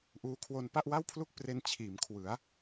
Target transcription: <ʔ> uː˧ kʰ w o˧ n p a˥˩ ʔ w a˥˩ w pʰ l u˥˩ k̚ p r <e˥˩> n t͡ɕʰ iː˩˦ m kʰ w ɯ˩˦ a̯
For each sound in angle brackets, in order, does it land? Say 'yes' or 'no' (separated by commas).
yes, no